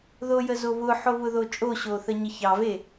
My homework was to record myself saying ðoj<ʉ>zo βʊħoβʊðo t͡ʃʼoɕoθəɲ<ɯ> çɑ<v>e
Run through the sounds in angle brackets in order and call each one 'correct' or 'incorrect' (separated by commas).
incorrect, incorrect, correct